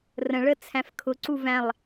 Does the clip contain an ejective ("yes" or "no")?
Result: no